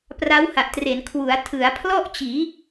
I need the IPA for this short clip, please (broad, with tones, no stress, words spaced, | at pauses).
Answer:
pra˦˥wha˨˩ʔtre˩˦n kʰwu˩˦a̯ tʰɯ˩˦a̯pʰlɔ˥˩ʔt͡ɕiː˩˦